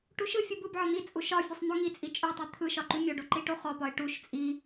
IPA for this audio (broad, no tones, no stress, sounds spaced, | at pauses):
ʈ u ʃ ɯ fʲ u b ɯ b ʕ ɒ n̪ i t͡sʼ u ʃ ɒ fʲ ɯ sˤ n̪ o ŋ i t͡sʼ i t͡ʃʼ o tˤ i t̪ʰ ɯ ʃ ɒ ǃ u mʲ ɔ ɖ o ǃ i ʈ o χ ɔ p ɒ ɪ̯ ʈ u ʃ t͡sʼ i